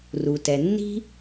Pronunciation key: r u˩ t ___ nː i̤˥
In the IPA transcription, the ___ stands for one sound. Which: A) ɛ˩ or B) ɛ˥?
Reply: A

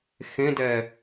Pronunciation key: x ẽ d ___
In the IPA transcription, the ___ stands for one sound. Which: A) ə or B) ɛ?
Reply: B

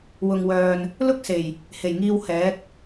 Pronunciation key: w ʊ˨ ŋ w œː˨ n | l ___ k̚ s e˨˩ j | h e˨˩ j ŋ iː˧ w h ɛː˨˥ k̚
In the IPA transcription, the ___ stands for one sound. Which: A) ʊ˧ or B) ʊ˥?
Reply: B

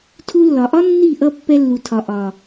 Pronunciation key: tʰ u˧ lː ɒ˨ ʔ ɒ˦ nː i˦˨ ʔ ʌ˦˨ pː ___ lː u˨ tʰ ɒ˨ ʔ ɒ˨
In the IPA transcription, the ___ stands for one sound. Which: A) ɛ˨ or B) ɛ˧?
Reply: B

